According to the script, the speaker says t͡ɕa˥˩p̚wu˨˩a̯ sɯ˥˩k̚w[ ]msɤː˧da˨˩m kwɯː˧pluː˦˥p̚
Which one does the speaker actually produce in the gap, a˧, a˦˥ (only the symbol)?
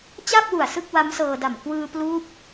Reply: a˦˥